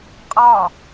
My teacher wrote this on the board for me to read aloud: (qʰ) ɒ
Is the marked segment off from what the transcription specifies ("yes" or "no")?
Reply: yes